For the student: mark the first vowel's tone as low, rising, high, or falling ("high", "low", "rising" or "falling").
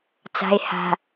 low